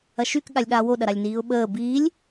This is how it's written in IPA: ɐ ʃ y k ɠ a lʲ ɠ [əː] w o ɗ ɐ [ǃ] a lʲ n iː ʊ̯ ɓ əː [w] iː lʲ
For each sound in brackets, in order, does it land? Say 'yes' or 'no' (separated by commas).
no, no, no